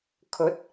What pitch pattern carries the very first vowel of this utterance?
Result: rising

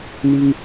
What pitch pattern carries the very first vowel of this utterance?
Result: high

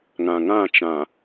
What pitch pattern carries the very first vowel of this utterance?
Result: low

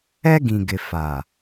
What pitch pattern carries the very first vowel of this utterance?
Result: high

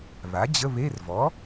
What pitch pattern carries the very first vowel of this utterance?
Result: rising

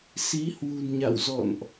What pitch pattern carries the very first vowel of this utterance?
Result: rising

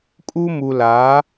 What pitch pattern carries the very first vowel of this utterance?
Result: high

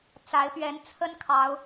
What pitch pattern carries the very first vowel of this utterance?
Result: rising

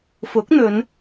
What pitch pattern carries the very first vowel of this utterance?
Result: rising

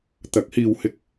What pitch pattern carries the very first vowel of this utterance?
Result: rising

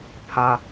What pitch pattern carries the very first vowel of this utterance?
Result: high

